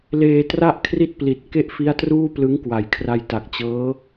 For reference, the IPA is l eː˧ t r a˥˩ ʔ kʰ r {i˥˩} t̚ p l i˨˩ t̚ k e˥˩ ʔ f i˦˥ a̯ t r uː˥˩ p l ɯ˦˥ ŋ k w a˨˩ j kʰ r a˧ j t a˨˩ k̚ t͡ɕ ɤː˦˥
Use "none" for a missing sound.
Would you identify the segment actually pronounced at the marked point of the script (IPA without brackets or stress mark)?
i˥˩